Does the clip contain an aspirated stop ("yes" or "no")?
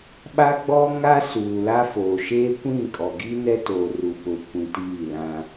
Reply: no